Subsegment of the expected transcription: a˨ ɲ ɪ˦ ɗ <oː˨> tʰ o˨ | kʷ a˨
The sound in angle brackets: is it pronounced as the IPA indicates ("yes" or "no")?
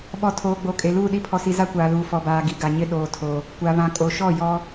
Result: yes